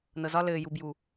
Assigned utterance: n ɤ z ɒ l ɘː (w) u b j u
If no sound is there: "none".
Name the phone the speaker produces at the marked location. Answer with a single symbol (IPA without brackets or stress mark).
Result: j